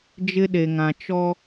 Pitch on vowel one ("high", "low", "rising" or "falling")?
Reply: high